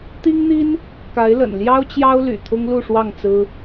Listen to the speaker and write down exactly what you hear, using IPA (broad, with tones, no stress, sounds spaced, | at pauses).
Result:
t̪ i˦ ŋ n̪ i˦ n | k a˨˦ ɪ̯ l ə̰˨˩ n l j ɑ˦ ʊ̯ t͡ɕ j ɑ˦ ʊ̯ l y̰˨˩ t̪ʰ ʊ˦ ŋ l u˥˨ ʂ w ɑ˥˨ ŋ t͡s ɹ̩˦